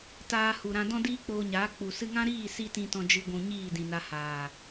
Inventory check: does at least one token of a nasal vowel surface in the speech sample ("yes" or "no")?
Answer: yes